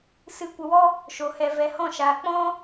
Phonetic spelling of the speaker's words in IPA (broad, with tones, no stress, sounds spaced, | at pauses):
s ɨ˧ kʷ ə˧ w ɔ˦ | ʃ o˧ h ɛ˧ v ɛ˧ h ɔ̃˦˨ ʃ aː˧ k͡p ɔ̃˦